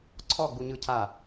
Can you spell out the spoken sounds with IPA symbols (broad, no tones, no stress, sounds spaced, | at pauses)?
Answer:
ǀʰ ɔ ɡ͡b u ɲ ɯ cʰ a